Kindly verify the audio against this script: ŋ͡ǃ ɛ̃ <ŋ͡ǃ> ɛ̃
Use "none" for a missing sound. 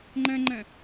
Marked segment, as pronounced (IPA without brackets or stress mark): ŋ͡ǃ